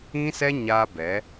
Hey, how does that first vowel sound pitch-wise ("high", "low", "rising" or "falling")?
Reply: high